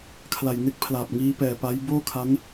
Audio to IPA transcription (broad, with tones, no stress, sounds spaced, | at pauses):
kʰ l a˨˩ j n e˦˥ k̚ pʰ l aː˨˩ p̚ ŋ iː˦˥ p ɛː˨˩ p a˦˥ j b oː˥˩ kʰ a˦˥ n